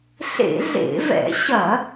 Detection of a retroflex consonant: absent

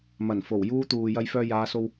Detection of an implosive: absent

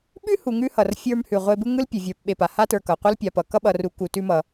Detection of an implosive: present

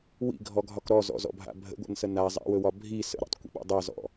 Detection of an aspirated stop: absent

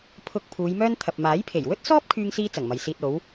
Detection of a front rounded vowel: present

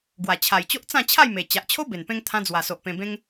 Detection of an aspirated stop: present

